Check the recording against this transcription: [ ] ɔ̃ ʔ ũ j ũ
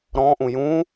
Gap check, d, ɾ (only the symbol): ɾ